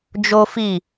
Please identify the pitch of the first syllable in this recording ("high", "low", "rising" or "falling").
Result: high